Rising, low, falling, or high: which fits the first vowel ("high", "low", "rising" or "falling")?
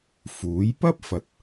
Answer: rising